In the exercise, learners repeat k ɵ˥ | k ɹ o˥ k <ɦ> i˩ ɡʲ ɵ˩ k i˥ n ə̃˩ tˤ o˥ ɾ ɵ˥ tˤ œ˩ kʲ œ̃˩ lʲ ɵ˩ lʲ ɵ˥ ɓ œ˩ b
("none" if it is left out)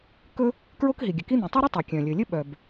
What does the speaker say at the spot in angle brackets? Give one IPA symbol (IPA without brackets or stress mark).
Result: ɦ